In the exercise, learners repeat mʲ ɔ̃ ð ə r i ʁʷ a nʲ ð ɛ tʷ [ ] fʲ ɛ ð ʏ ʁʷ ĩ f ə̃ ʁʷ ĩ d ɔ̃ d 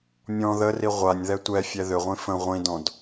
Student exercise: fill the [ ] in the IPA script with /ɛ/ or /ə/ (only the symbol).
ɛ